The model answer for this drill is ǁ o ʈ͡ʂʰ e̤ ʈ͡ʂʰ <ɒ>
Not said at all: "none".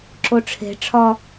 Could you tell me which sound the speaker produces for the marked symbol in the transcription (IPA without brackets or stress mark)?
ɒ